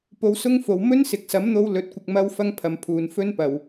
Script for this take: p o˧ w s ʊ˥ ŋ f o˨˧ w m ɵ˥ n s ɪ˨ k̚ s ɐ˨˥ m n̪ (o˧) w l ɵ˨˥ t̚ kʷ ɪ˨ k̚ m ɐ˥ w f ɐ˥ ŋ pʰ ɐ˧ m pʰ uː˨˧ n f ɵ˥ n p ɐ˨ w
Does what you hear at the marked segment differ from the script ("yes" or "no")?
no